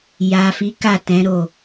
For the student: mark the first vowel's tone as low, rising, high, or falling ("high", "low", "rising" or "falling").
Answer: low